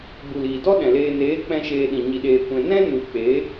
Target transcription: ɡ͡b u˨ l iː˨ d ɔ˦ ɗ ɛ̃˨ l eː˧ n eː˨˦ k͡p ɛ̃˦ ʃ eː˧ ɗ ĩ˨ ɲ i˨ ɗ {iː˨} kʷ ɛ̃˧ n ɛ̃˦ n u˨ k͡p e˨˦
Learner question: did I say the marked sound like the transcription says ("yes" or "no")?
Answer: no